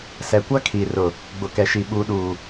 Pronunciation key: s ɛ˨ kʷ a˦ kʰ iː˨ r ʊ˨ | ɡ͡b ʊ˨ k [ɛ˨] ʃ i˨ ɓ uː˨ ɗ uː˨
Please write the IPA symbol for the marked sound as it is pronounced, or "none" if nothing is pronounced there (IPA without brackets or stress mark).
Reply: ɛ˨